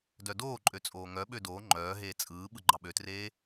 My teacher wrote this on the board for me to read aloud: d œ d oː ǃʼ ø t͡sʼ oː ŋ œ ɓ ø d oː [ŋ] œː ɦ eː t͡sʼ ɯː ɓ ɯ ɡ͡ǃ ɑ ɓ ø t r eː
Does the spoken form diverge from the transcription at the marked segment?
yes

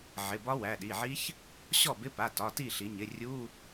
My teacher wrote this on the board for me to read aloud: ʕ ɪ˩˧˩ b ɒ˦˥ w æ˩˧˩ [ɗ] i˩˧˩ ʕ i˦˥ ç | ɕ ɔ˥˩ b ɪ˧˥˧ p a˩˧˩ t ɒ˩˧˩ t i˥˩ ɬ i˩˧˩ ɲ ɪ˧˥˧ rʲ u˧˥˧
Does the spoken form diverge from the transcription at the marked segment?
no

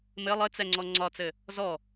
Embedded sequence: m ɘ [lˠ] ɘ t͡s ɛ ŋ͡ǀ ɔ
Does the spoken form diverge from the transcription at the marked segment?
no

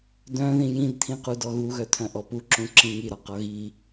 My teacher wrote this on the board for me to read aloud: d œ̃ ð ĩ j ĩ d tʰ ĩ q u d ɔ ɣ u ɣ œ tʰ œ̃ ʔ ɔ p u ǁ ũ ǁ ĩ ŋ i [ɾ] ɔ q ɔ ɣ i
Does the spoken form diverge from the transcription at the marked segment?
no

